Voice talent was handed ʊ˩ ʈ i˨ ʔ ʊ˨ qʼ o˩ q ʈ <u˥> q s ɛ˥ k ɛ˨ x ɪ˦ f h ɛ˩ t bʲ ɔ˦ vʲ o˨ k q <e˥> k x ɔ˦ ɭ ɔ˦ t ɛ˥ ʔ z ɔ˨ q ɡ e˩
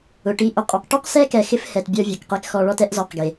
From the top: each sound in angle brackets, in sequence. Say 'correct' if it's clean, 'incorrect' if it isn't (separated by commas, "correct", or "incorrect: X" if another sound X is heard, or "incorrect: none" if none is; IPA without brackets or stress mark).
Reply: correct, correct